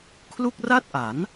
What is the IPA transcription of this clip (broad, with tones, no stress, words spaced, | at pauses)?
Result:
kʰlu˥˩k̚ra˥˩t̚ʔa˩˦n